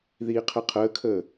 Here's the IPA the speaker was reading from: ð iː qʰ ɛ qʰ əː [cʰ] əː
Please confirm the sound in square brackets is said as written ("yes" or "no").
no